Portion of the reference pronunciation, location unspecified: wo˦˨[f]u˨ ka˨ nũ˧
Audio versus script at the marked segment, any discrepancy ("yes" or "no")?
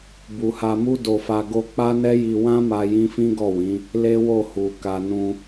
yes